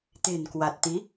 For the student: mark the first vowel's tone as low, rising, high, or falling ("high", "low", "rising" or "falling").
low